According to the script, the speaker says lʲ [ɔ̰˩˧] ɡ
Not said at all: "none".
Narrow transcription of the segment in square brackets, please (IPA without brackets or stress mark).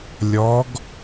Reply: ɔ˩˧